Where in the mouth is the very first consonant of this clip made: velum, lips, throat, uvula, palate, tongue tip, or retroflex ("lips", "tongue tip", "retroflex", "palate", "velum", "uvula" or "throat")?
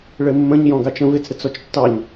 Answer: retroflex